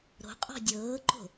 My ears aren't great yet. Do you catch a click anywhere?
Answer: yes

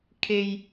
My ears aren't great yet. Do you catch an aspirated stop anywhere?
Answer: yes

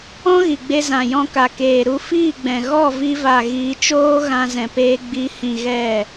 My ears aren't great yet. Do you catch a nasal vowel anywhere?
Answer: yes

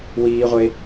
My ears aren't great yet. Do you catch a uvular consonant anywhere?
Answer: yes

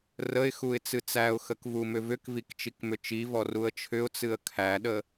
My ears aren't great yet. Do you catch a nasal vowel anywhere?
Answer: no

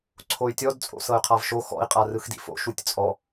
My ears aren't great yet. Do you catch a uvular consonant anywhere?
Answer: yes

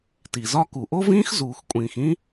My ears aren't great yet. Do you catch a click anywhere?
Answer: no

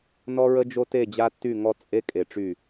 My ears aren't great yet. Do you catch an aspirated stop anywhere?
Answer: no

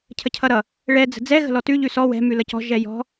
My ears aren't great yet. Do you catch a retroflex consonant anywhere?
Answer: yes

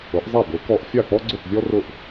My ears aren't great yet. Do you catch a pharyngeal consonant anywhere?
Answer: no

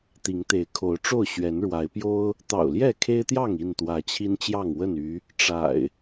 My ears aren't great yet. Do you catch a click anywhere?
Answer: no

